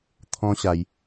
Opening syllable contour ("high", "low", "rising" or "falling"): high